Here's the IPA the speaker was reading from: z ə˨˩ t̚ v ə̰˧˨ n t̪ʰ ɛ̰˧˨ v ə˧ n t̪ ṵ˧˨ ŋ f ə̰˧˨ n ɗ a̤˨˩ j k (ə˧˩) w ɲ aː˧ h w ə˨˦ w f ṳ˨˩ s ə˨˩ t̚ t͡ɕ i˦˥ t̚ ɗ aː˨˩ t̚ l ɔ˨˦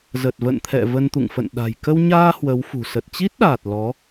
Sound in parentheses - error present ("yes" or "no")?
yes